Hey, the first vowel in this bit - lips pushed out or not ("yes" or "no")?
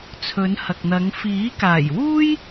yes